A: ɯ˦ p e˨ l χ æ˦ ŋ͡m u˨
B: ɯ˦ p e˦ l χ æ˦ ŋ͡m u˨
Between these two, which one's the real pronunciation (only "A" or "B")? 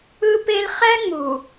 B